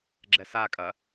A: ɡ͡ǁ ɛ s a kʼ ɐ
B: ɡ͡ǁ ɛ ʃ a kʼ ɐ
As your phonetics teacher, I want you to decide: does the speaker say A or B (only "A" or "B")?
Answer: A